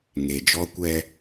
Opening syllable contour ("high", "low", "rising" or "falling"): low